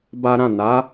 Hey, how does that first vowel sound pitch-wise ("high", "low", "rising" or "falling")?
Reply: high